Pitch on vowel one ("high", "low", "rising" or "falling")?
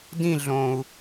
falling